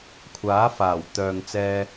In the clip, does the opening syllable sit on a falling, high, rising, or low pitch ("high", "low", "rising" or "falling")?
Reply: rising